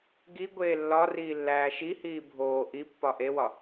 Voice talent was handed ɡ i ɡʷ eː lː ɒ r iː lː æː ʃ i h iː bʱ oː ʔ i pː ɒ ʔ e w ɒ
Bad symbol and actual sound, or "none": none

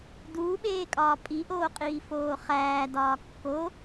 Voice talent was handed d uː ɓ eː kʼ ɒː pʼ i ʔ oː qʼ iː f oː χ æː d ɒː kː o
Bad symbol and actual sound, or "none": none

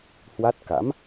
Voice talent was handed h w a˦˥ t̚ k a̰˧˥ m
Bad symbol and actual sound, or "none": none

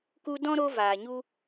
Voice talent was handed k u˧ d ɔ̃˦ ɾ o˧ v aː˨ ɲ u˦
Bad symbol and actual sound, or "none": none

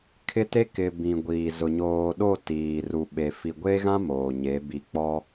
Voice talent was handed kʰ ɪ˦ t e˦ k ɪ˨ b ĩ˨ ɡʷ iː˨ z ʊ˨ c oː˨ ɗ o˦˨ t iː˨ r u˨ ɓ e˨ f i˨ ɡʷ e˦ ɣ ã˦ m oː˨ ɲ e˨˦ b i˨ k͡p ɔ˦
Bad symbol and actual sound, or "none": c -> ɲ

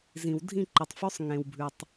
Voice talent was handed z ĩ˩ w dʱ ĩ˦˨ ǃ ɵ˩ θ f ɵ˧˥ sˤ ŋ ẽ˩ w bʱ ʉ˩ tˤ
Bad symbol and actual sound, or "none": θ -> tˤ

